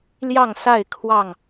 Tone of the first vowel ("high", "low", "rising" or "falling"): falling